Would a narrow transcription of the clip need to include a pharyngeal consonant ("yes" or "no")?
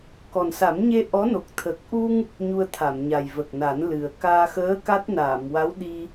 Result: no